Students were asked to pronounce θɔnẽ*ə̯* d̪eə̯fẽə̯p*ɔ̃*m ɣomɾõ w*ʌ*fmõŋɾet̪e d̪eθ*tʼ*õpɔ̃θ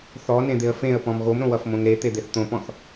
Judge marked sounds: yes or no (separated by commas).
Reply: no, yes, yes, no